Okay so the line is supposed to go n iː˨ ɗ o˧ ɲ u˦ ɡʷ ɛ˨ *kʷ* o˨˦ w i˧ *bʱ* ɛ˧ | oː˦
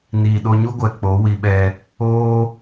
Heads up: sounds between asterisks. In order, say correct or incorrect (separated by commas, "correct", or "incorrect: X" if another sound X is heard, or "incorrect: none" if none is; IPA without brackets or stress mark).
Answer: incorrect: k͡p, incorrect: ɓ